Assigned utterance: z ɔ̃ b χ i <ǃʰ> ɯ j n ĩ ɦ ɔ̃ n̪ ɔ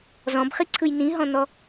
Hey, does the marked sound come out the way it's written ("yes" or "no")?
no